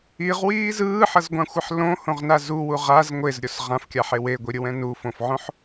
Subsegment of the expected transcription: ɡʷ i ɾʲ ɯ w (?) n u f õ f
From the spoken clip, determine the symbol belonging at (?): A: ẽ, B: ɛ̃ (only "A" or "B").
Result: B